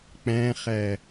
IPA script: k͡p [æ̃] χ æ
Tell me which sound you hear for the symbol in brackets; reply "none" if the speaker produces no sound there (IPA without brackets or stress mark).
æ̃